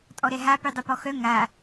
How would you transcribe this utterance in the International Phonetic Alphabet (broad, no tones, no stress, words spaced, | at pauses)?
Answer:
tʼɔɾɛɦa pydˤupɔxœ ŋa